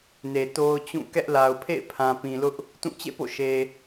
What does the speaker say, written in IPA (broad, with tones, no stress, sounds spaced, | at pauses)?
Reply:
n e˨ t o˦ ʊ̯ t͡ɕ ũ˦˨ k ɛ˦ ʔ l a˨ ʊ̯ pʰ ḛ˦˨ ɪ̯ pʰ ã˨ p ĩ˨ l ʊ˦ ʔ | t ũ˦˨ t͡ɕ ḛ˦˨ p o̰˦˨ ʃ e˨